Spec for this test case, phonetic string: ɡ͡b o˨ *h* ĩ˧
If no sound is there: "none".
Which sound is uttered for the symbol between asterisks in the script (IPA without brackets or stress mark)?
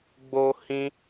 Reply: h